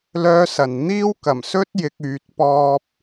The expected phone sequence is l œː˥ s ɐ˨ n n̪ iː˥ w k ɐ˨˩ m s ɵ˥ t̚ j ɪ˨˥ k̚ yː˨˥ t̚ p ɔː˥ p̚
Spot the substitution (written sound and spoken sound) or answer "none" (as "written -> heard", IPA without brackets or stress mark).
none